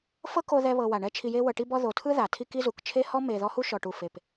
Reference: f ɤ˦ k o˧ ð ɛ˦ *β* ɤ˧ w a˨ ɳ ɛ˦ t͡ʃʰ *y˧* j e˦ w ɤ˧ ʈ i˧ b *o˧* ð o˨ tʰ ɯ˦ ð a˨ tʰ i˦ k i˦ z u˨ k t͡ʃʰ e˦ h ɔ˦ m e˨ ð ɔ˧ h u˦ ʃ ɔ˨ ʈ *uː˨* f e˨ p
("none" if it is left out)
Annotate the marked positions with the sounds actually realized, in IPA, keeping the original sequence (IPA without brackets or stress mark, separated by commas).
β, i˧, ɔ˧, u˨